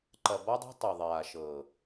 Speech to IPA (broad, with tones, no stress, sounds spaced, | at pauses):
ǃ ɐ˨ b ɔ˦ dˤ a̤˦ tˤ ɤ˨ ðˤ aː˨ ʃ ɤː˨